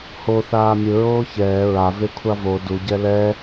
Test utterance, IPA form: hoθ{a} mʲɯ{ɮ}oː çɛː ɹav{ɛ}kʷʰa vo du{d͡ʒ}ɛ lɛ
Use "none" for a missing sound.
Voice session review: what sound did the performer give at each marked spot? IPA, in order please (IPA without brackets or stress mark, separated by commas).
aː, ɹ, e, ɟ